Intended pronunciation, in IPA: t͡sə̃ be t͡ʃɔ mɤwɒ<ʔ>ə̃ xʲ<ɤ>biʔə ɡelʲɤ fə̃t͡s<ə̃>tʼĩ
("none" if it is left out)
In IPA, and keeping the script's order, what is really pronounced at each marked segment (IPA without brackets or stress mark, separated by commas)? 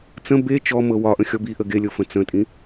ʔ, ɔ, ə̃